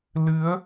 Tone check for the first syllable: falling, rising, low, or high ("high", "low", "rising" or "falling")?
rising